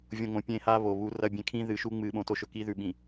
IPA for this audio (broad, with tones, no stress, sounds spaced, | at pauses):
vʲ õ˨ ŋ õ˨ pʲ ẽ˦ h a˦ β o˨ β u˨˦ r ɐ˦˨ bʲ ẽ˦ kʰ ĩ˦ ð ɨ˨ ʃ u˦ ŋ͡m ɨ˨˦ ɓ õ˨ t o˦ ʃ ɵ˨ k i˦ ð ʉ˨ ɓ ĩ˨